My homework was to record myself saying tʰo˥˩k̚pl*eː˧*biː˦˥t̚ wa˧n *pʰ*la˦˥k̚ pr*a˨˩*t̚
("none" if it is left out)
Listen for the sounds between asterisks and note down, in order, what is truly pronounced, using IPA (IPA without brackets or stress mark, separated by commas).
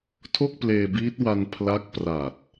eː˧, pʰ, a˨˩